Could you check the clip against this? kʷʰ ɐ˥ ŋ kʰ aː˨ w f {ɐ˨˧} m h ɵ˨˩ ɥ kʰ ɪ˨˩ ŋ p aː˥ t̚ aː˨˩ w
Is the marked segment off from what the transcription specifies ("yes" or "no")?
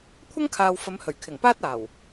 no